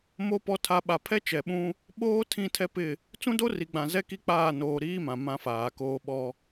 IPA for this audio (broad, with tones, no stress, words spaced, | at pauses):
mo˨˦pɔ˨tʰa˨ ɓa˨pʰɛ˦t͡ʃɛ˨ɓũ˦ | ɓoː˦tʰĩ˦˨tʰɛ˦ pɪ˦˨ | t͡sũ˦do˦ri˨ɡ͡bã˨ zɛ˦ki˦k͡paː˦˨noː˨ ɾiː˦mã˨ mã˦faː˨koː˦ ɓɔ˦